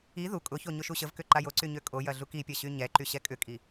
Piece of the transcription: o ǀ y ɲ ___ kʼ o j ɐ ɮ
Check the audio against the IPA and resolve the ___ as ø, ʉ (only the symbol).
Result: ø